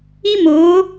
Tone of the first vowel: high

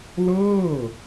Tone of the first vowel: falling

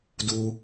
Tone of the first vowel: low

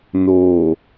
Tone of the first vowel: low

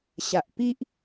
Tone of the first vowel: low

